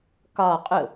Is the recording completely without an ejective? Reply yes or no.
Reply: no